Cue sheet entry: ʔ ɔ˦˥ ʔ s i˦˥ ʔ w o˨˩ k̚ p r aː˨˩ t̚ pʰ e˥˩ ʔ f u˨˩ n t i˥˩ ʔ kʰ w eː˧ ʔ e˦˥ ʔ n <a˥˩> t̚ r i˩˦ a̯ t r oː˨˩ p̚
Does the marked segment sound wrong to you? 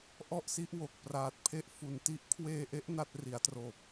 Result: no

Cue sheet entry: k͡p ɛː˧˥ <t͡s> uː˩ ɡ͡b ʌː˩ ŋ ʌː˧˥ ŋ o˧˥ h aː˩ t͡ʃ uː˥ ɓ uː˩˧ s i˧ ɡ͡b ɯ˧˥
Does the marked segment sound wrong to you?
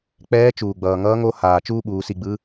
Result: yes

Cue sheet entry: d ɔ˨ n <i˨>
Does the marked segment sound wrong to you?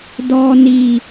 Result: no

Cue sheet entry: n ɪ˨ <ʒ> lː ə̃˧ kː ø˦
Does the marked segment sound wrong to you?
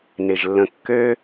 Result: no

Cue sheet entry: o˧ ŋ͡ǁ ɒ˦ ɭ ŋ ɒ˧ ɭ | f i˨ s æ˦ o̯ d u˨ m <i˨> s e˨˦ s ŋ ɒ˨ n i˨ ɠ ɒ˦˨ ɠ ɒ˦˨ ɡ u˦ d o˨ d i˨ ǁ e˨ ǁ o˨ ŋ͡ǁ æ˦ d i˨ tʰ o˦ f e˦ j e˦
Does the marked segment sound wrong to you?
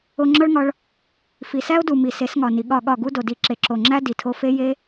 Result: no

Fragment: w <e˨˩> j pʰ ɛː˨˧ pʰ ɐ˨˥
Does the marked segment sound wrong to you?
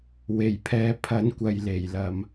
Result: no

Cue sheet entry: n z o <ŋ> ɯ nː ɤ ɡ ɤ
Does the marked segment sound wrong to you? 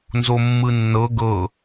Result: yes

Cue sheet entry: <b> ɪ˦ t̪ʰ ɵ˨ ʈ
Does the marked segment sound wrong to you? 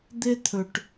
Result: yes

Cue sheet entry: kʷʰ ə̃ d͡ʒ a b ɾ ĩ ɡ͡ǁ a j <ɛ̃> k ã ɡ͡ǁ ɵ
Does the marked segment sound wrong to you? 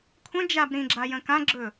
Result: yes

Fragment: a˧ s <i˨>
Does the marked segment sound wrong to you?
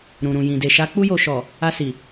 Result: no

